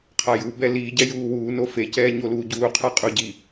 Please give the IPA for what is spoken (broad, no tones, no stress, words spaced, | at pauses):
qʰajubɛ liːɟɛ juːwuːno fecɛː ɲoluːɟuːqʰa qʼuɟi